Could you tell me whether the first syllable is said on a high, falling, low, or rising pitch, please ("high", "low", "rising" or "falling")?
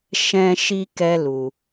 high